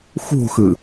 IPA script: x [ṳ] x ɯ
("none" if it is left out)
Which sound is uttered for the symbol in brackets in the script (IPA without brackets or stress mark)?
ṳ